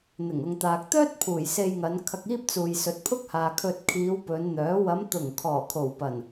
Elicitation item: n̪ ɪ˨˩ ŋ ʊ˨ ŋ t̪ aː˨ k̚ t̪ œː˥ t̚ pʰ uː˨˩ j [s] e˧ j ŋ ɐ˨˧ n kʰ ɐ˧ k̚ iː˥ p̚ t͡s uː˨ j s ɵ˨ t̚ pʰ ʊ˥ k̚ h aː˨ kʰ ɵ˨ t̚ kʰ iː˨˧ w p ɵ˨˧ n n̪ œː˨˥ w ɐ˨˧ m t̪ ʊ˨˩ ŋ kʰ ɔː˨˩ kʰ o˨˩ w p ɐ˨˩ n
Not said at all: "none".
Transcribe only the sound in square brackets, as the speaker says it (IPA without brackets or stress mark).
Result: s